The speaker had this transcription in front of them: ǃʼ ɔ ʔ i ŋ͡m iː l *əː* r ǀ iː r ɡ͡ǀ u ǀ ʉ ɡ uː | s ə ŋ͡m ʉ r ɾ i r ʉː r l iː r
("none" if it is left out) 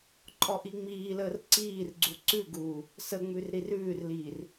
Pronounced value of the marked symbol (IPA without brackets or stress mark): əː